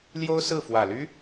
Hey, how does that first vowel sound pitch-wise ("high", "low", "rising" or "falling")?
high